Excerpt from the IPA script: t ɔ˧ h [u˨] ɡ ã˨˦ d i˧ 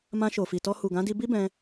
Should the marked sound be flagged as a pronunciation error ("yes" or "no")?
no